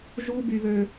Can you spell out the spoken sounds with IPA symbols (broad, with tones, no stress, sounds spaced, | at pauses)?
ʒ u˥ b y˥ β ø˥